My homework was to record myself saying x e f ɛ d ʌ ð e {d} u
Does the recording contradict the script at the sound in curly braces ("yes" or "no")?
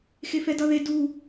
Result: no